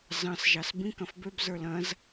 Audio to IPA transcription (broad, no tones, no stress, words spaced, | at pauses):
zɑ̃s ʒɑsbĩk ɐ̃fbøb zə˞lɐ̃z